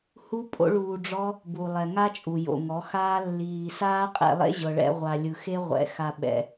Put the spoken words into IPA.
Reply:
h u˦ pʼ o̰˦ ɭ uː˧ ɖ͡ʐ ɔ˦ | b u˨ lˠ ɛ˨ ŋ a˦ t͡ʃʼ u˨ j o̰˨ ŋ ɔ˨˦ x aː˦ lː iː˨ s aː˦ qʼ ḛ˧ lˠ ḛ˦ ʑ ɤ˨ ɭ ɛ̰˧ ʁʷ a˨ lʲ ɯ˨ x e˦ ʁʷ ɛ̰˨ x a˨ ɓ ɛ̰˨

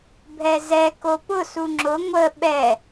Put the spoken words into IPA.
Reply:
bʱ ɛ z ɛ k o p ʊ s u ŋ͡ǁ ʊ ŋʷ ə ɓ ɛ

